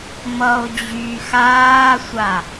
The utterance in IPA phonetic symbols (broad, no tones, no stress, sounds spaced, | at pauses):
m ʌ o̯ d͡ʑ yː x aː sʷ a